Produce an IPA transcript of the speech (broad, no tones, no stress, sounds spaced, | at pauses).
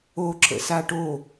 o ǁ ə̰ s a ʈ o